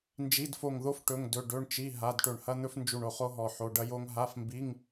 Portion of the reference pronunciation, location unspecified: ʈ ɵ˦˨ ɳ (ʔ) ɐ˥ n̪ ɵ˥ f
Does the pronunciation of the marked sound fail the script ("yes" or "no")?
yes